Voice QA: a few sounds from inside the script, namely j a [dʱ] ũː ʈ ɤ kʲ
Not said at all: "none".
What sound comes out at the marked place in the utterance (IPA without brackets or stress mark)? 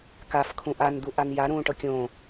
ɾ